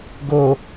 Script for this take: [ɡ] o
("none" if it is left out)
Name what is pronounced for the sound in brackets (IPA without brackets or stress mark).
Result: ɡ